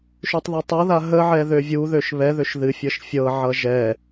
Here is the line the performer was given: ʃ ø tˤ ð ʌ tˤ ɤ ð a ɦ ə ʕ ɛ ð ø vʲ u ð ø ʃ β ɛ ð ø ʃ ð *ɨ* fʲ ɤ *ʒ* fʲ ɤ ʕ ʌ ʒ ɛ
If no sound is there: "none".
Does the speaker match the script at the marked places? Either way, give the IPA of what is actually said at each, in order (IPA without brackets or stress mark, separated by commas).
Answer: ɨ, ʃ